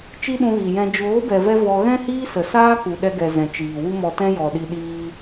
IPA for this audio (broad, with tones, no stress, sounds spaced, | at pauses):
t͡ʃ i˦ ɗ ũ˧ ɣ i˨ j ɛ̃˧ d͡ʒ oː˨˦ b ɛ˨ v ɛ˧ v ɔ˧ ɣ ɛ̃˦ h iː˦ s ə˨ s aː˦ k u˨ ɗ ɛ˧ ɡ ɛ˨ z ɛ̃˨ t͡ʃ iː˨ w u˦ m ɔ˧ t ɛ̃˦ j ɔ˨ ɗ i˧ ɗ iː˦